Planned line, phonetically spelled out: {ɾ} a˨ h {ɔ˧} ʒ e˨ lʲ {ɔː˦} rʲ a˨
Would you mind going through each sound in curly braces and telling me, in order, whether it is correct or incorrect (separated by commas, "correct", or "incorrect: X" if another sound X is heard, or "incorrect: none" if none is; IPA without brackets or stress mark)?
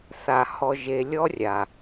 incorrect: θ, incorrect: ɔ˨, incorrect: ɔ˦